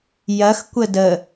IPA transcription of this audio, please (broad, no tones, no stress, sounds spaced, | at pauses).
j ɐ x kʷ ə d ə